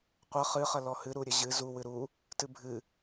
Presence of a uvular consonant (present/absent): present